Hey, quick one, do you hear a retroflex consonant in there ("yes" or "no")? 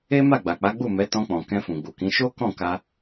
no